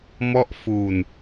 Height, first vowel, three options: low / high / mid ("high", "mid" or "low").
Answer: mid